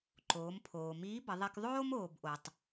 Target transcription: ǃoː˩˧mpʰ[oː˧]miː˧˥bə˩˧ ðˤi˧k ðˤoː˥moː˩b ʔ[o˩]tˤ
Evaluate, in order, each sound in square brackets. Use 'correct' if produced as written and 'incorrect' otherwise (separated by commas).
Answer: incorrect, correct